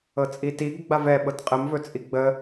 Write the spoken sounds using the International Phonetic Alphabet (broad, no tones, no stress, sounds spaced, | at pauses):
ɤ t͡sʼ i t i ɡ ɡ͡b a v ɛ ɓ ɤ t qʼ ə m v ɵ t͡sʼ i ɡ͡b ə